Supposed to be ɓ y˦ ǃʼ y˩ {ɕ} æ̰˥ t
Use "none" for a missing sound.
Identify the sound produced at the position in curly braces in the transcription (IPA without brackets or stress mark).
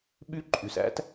s